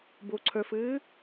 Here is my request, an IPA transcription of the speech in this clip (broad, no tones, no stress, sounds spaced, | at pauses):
b o ǀʰ œ f ɘː